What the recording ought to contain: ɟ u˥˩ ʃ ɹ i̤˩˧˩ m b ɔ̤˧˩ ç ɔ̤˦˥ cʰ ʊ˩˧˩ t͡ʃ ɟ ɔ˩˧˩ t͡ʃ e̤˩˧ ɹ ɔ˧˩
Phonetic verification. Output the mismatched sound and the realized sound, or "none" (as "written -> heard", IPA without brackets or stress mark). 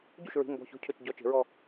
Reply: none